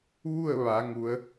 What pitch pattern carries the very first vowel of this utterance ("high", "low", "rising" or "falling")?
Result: falling